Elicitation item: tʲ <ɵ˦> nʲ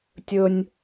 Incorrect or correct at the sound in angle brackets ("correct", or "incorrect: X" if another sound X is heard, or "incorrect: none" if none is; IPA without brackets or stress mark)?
correct